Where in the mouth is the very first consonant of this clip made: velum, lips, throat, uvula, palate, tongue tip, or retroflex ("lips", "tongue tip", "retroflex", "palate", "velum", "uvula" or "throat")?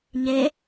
palate